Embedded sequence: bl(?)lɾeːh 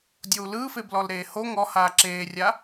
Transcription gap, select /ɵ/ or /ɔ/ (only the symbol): ɔ